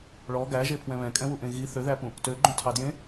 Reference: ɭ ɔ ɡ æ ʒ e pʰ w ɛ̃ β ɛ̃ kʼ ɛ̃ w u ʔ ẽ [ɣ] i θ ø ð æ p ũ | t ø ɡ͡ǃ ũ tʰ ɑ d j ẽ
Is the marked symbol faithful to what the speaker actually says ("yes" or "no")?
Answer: yes